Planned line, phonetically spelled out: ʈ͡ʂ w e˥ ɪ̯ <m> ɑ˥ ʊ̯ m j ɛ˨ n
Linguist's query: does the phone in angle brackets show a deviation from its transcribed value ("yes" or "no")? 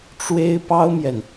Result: yes